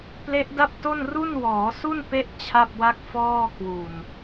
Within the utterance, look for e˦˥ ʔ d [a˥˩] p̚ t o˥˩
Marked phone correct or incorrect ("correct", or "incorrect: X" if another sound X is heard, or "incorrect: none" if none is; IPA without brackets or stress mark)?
correct